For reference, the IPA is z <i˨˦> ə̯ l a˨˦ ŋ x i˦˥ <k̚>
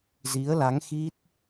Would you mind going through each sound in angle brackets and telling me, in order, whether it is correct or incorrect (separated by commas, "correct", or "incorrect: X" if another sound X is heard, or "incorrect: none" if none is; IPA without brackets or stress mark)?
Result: correct, incorrect: t̚